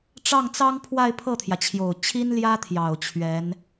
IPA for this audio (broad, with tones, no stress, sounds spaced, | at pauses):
ʈ͡ʂ ɑ˥˩ ŋ t͡s ɑ˥ ŋ pʰ w a˥˧ ɪ̯ pʰ ɤ˥˩ t̪ʰ j ä˩ t͡ɕʰ j o˨˩ ʊ̯ t͡ɕʰ i˥ n l j ä˥ t̪ʰ j ɑ˨˩ ʊ̯ t͡ɕʰ ɥ ɛ˧˥ n